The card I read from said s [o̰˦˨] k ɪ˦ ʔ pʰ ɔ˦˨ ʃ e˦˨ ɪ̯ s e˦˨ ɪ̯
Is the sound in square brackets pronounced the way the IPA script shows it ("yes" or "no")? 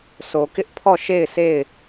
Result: no